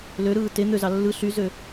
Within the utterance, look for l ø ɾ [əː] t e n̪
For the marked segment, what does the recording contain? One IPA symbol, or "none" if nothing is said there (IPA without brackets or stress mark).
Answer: ɯː